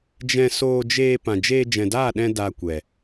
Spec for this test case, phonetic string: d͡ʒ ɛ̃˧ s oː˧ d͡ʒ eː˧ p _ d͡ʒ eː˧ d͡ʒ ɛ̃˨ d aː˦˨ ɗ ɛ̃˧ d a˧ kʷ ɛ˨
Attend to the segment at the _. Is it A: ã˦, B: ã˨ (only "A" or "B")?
B